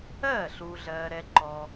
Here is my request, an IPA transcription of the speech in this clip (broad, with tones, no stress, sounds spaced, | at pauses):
ɜː˥˩ ɬ uː˨ ɮ ɜː˨ ɾ ɛ˨ ǃ ɔ˨